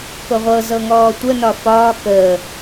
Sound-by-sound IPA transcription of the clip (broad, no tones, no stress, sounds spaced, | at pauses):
k o ʁʷ ɤ z ɤ ŋ ɔː tʷ ə n ɒ f ɒː k əː